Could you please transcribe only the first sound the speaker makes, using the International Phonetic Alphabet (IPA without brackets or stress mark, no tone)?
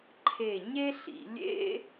ǃʰ